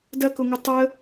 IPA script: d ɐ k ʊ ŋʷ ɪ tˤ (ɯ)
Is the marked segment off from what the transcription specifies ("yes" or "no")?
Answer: yes